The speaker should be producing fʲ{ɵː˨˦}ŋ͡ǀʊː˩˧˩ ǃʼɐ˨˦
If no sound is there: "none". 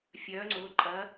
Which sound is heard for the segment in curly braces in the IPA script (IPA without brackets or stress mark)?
œː˨˦